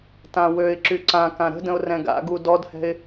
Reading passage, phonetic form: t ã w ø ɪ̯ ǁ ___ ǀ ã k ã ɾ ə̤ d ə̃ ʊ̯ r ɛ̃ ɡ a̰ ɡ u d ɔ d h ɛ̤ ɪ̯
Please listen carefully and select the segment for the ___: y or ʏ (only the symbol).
y